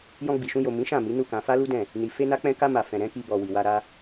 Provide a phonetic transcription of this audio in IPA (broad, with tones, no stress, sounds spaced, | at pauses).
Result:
j ɔ̃˧ ɡ͡b i˨ ʃ ũ˧ j o˨ m ĩ˨˦ ʃ ã˦˨ m i˨˦ n u˦˨ k ã˧ f a˦ l u˦ d ɛ̃˦˨ | n i˨ f e˧ n a˧ k͡p ɛ̃˧ k a˧ m a˨ f ɛ̃˨ ɾ ɛ̃˨˦ k i˧ b ɔ˨ w i˨ w a˧ ɾ a˧